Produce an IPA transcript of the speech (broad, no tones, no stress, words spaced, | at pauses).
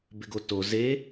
bɪɡoto ze